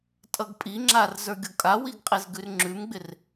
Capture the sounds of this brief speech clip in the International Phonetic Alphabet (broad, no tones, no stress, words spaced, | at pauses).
tʼʌɡpʼiŋ͡ǁar zə˞ɡʲokʼawiɡ qʼezɡʉrŋ͡ǁʉmɡ͡bɪr